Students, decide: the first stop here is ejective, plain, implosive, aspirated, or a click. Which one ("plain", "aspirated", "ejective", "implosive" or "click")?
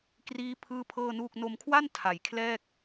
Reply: plain